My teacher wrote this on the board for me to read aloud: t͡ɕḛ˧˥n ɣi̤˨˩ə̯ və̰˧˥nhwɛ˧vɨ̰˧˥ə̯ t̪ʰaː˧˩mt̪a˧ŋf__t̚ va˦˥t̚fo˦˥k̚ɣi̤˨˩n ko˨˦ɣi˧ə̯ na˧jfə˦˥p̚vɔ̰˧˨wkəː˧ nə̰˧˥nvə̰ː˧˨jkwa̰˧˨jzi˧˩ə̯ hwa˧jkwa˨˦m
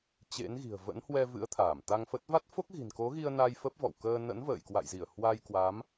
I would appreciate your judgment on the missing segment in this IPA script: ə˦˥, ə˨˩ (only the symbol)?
ə˦˥